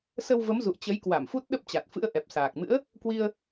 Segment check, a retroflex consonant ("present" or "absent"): absent